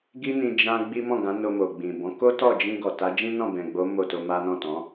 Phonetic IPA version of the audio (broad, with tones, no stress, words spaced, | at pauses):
ɡi˦nĩ˧ d͡ʒã˦ɡ͡bi˦ mɔ̃˦˨ɡã˨˦ no˧mo˨ɡ͡bĩ˨bɔ̃˨˦ ko˦tɔ˦˨d͡ʒĩ˧ ɡɔ˨ta˨˦d͡ʒĩ˦nɔ̃˦˨ bɛ̃˨ɡ͡bo˨˦ mo˦˨to˧ma˦ nɔ̃˦˨tɔ̃˨˦